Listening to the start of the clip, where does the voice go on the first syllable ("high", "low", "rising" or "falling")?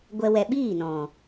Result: high